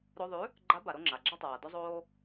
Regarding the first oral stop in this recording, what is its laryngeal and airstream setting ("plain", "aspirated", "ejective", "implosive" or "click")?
click